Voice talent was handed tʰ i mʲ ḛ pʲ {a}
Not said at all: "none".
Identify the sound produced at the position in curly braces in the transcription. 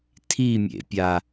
a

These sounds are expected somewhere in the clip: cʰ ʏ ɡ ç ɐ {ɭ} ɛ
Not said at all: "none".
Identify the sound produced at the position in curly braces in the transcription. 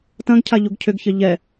ʎ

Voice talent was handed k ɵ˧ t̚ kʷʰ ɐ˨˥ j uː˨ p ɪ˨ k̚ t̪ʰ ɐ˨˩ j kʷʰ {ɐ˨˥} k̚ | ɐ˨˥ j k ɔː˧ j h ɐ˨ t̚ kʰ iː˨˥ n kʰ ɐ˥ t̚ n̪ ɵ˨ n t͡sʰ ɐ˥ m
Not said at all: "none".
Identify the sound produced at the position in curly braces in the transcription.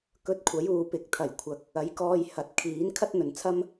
ɐ˨˥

